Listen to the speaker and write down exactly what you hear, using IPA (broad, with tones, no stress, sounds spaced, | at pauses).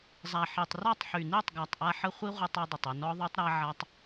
zˤ a˨ ħ i˨ tˤ r ɔ˦˨ tˤ ħ y˨ n i˦˨ tˤ ɡ a˨ tˤ ʔ a˦ ħ ə˦ χʷ i˦ ʁʷ i˧ tˤ i˧ dˤ ə˨ tˤ y˨ n ɔ˧ ðˤ y˧ tˤ ɾ a˦ ʕ a˦ tˤ